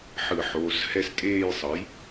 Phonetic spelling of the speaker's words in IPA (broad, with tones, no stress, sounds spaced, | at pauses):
ħ ɯ˧˩˧ ħ oː˩˧˩ s h ɛ˦˨ s tʼ eː˦˨ j sˤ ʌ˩˥ j